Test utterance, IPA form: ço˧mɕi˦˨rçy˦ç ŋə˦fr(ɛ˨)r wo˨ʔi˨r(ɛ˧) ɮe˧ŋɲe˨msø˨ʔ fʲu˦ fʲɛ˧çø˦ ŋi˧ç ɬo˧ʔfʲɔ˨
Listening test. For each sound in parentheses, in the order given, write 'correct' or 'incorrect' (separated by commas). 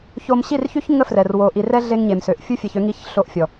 correct, correct